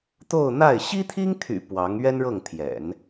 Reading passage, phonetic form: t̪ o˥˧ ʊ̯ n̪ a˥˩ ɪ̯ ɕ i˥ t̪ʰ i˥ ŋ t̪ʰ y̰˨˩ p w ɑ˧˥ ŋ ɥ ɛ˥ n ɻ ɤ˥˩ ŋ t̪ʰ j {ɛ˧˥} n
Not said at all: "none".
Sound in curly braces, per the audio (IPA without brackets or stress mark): ɛ̰˨˩˦